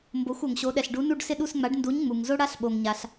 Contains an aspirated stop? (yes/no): no